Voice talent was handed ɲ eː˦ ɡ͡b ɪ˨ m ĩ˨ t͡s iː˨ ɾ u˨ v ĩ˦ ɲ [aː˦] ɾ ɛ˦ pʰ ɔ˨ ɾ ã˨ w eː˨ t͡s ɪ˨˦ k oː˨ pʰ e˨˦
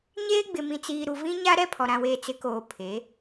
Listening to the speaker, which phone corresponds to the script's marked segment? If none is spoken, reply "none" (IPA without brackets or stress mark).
a˦